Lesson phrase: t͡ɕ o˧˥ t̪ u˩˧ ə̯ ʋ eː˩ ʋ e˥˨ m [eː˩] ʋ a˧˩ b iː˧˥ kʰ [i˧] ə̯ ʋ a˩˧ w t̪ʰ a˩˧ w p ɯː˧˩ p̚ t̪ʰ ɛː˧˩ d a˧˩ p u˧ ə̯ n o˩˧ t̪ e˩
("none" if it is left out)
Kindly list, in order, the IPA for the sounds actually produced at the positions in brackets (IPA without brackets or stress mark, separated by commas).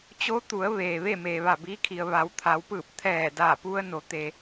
eː˩, i˩